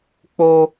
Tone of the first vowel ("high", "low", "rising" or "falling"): high